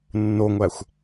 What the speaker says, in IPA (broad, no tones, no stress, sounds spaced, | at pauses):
nː o ŋʷ æ xʷ